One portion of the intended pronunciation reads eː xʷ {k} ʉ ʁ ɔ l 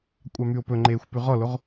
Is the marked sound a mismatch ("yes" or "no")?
yes